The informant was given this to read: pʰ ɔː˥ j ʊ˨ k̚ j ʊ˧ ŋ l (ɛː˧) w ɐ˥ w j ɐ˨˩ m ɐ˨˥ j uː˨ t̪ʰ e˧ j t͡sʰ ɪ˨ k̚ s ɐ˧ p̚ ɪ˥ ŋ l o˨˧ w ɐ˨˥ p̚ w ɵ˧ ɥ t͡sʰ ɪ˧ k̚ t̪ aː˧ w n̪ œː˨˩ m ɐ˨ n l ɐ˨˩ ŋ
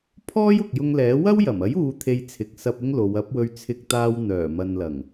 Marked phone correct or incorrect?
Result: incorrect